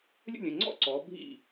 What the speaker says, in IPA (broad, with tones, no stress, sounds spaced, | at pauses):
lʲ ə̰˥˨ lʲ ə̃˩˧˩ ŋ͡ǀ ɔ̰˥˨ ǀ ɔː˩˧ bʱ ḭ˧˩